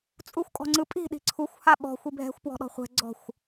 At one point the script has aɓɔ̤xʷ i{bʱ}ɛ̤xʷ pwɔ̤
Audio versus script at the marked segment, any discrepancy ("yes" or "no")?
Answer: no